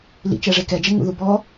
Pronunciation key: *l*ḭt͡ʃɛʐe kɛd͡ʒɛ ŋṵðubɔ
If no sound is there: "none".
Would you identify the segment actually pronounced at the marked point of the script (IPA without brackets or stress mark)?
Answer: l